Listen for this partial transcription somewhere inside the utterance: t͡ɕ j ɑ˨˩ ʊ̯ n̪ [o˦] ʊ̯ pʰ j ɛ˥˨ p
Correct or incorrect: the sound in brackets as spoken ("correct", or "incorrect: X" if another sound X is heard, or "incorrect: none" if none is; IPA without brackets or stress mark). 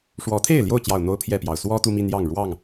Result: correct